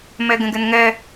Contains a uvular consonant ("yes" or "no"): no